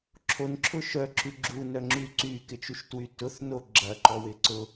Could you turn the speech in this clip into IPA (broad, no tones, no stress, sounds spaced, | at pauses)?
ǁʰ o n ǁʰ ʊ ʃ œ ǁ y ɡ͡ǁ u n œ ŋ͡ǁ y ǀ y k ɪ t͡ʃ u ʃ t w y t ʊ θ n o ɡ͡ǁ ɐ ǃ ɔ w ɪ ǀ ʊ